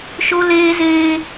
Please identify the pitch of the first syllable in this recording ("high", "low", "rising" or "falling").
high